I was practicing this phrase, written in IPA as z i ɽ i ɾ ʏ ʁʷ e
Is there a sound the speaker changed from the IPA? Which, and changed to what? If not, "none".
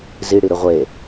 none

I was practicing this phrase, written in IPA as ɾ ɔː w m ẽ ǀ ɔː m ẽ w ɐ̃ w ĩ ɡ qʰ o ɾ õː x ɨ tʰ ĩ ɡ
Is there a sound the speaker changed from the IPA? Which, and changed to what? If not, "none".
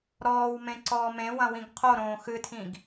none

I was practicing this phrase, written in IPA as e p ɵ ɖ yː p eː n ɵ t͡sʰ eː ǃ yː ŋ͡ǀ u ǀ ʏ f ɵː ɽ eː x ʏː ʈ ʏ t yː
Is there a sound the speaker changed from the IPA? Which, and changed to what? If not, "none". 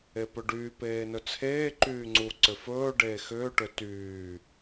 ɽ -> ɖ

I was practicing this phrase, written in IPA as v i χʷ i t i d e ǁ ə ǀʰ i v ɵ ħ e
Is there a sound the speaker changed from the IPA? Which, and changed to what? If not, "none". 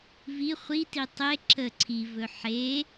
d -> tˤ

